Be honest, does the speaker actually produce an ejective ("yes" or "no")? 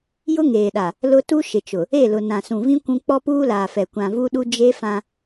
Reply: no